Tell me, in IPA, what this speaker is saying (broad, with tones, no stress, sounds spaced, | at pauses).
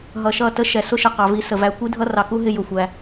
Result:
ɦ ʌ˨ ʃ ʌ˦˨ t ə˦ ʃ ɛ˨ s ʊ˦ ʃ ə˨ q ɑ˨ v i˧ s ə˨ v æ˧ kʷ i˦ dʱ ʌ˦ r ɑ˨ k u˦ ɦ ɪ˧ j ʊ˨ xʷ æ˧